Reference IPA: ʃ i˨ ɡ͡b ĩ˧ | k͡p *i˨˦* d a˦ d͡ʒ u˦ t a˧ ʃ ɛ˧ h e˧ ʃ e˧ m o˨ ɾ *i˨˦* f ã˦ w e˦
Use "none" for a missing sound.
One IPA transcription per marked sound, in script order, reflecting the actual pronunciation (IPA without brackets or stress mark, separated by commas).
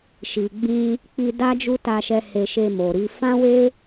i˧, i˨˦